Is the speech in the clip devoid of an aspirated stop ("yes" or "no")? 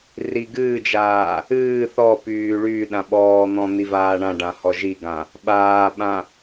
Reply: yes